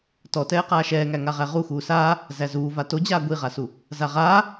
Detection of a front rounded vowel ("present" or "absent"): absent